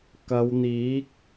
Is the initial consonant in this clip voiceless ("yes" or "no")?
yes